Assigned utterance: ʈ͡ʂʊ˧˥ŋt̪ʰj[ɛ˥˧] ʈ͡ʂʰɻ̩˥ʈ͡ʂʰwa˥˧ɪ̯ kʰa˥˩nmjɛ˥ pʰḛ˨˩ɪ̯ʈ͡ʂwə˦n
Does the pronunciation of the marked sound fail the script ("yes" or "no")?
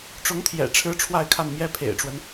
yes